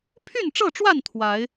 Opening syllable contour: falling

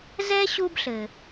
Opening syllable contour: high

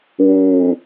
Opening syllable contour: low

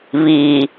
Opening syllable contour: low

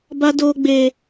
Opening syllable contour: high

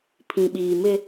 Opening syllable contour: low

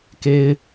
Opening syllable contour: high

